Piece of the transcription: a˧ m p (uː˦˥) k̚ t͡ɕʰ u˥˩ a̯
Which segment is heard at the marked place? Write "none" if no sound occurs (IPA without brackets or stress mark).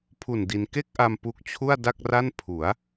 u˦˥